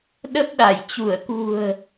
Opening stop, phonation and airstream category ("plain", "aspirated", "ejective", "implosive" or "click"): implosive